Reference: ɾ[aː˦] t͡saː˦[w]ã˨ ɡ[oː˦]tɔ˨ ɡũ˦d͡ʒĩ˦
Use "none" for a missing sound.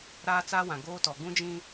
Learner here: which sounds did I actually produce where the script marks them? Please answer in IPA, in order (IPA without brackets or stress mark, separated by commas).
aː˦, w, oː˦